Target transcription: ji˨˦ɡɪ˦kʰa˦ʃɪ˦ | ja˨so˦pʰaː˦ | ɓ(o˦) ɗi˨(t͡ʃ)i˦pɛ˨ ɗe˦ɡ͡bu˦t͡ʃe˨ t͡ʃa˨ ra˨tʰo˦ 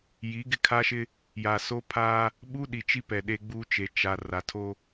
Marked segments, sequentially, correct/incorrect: incorrect: u˦, correct

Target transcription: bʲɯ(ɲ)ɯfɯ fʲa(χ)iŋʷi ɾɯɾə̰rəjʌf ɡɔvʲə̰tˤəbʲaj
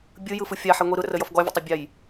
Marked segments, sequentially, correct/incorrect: incorrect: j, incorrect: ħ

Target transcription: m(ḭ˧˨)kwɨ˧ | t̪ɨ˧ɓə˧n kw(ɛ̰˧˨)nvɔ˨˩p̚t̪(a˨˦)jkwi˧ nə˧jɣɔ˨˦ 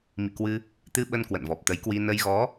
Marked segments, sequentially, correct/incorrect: correct, incorrect: ə̰˧˨, incorrect: ə˨˦

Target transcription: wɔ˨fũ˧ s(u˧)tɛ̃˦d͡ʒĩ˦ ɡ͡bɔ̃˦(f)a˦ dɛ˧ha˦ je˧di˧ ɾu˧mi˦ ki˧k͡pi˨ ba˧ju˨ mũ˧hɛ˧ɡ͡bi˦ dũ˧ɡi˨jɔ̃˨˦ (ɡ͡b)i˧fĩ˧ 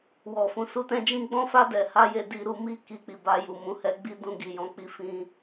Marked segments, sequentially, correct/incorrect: correct, correct, incorrect: k͡p

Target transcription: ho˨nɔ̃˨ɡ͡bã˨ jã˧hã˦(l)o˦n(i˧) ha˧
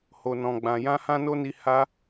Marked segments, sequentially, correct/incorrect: incorrect: n, correct

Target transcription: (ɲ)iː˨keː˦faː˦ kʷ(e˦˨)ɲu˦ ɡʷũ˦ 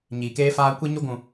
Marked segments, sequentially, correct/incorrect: correct, incorrect: e˦

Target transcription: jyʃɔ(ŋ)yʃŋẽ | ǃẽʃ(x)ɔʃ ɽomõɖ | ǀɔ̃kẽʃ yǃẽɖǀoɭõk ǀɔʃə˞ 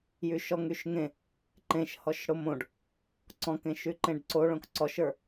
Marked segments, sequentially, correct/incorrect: correct, incorrect: h

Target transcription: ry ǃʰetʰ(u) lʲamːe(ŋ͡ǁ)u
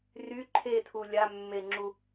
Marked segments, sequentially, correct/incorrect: correct, correct

